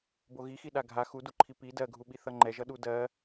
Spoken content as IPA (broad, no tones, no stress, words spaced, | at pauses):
boɣixi ɗaɡʱa xuduǃʰi pi dɜɡʱuɓi θʌŋ͡ǃɛʒʌɗu dɜ